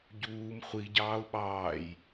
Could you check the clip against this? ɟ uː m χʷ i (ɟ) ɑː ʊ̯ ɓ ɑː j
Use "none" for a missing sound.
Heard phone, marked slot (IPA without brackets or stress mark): ɟ